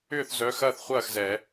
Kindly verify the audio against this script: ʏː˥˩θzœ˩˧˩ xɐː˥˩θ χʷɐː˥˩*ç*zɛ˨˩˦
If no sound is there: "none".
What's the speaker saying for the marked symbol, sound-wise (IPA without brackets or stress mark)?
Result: x